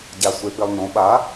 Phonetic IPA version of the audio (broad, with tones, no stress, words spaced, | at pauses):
ɟa˧sʷe˧pi˧lˠnõ˩˥ ɓa˩˥